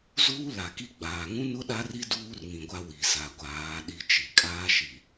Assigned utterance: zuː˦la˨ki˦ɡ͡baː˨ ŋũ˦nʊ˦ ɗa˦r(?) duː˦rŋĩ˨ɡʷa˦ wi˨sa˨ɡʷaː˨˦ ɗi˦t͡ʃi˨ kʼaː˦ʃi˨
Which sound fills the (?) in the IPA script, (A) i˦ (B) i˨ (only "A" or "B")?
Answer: A